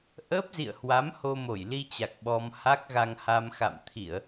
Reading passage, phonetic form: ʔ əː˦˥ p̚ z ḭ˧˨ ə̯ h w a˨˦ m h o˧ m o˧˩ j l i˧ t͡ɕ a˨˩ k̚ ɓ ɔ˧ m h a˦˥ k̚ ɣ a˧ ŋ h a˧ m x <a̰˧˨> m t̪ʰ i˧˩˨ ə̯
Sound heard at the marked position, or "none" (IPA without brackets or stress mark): a̰˧˨